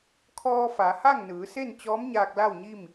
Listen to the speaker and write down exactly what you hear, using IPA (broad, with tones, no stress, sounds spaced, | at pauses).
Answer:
kʰ ɔː˧ f a˩˧ h a˥˨ ŋ n ɯː˩˧ s e˥˨ n t͡ɕ ɔː˧˥ m ɲ aː˧ k̚ l a˥˨ w ɲ i˥˨ m